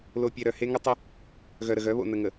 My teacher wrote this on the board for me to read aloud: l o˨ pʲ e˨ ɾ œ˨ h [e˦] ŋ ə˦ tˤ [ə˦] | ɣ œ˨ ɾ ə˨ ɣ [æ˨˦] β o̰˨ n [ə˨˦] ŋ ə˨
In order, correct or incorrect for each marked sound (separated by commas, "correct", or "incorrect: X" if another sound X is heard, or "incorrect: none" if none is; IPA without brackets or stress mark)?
correct, correct, incorrect: œ˨˦, incorrect: ə˨